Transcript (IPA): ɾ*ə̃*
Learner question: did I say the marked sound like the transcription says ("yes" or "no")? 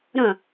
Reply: yes